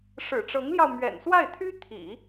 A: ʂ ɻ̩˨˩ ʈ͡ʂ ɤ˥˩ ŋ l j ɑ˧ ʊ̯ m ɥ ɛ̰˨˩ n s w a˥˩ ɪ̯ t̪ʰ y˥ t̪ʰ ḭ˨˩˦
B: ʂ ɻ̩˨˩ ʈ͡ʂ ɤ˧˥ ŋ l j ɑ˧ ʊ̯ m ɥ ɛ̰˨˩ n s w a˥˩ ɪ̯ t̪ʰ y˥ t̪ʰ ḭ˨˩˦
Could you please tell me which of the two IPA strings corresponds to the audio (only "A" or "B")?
B